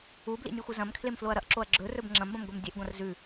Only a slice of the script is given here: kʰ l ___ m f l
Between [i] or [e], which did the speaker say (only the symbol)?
e